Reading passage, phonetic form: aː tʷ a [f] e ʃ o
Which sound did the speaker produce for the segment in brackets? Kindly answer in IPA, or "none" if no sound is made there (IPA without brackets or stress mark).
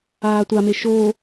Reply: m